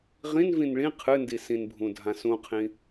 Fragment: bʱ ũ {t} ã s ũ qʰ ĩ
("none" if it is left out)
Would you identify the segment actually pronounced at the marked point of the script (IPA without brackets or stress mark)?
dʱ